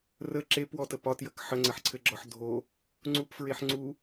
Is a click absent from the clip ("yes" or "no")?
no